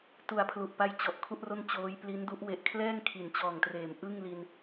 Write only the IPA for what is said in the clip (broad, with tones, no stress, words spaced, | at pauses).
tu˨˩a̯pʰlu˨˩ʔpa˦˥j t͡ɕɔ˨˩ʔ kʰu˥˩ʔro˥˩n t͡ɕoː˦˥jpli˦˥ndu˦˥ʔ we˨˩ʔkʰlɛː˥˩ŋ kʰi˩˦nt͡ɕɔː˨˩ŋtreː˩˦m ʔɯ˥˩ŋli˧n